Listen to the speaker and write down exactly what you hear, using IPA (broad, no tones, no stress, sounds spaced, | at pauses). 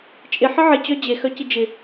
t͡ʃʼ ɪ ħ ə ʕ ɪ t͡ɕ œ d͡ʑ e x œ c ɪ d͡ʒ ɪ